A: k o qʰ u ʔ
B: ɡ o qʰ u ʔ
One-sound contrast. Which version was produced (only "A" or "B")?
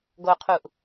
B